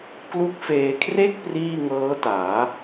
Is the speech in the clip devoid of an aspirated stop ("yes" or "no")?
no